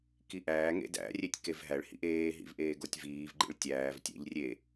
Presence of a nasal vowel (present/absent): absent